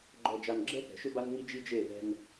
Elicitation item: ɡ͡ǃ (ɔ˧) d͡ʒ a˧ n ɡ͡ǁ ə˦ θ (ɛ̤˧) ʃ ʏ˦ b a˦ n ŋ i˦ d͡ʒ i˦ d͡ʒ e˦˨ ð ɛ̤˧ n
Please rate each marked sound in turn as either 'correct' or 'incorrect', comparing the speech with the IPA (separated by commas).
correct, incorrect